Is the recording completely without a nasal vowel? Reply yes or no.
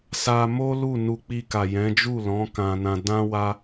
no